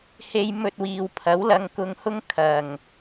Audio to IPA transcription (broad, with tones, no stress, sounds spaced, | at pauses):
h e˧ j m ɵ˧ t̚ w iː˨ w pʰ ɐ˨˥ w l ɐ˨˧ ŋ k ʊ˧ ŋ h ʊ˥ ŋ kʰ ɐ˨ ŋ